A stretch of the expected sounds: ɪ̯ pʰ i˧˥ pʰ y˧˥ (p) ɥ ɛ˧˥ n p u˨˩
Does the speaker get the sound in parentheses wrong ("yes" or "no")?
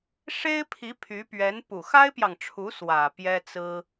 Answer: no